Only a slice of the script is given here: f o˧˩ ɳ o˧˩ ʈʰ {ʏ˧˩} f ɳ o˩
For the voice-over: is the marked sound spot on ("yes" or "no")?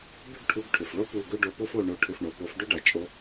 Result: yes